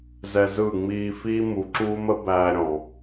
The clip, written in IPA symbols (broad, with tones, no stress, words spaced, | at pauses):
zɛ˧zɯ˦˨ŋ͡miː˧ fiː˦mu˨ǁuː˦mə˦ bæː˧ ɾʲɔ̃˨